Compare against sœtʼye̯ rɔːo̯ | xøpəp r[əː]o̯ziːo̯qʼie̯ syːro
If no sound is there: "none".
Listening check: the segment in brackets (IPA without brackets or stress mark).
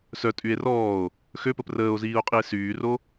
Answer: əː